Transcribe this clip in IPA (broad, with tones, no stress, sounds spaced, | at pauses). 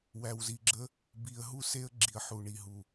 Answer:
w æ˨ w z i˨ ɡ͡ǁ ə˦ | b i˨ ə̯ ɦ u˦ s e˦ ə̯ ɡ͡ǁ i˨ ə̯ ħ u˨ ɳ i˨ ɦ u˨